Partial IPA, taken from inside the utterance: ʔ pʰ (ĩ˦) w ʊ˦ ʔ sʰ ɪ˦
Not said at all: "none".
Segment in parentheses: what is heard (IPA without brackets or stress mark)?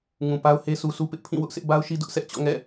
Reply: ĩ˦˨